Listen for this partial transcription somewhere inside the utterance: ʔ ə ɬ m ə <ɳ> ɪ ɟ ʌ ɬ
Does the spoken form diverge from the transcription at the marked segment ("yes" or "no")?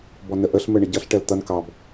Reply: no